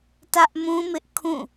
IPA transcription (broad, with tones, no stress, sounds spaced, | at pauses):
t ä˦ ʔ m ũ˦ m ɪ˦ ʔ kʰ ũ˦˨